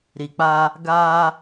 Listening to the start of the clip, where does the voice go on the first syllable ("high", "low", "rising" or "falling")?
low